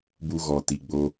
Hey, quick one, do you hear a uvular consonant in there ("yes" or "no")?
no